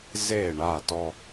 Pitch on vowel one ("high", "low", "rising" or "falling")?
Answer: falling